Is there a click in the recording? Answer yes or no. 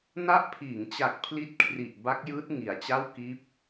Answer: no